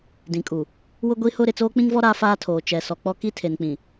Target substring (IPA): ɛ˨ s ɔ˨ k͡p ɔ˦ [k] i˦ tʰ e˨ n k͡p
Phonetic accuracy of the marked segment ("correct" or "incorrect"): correct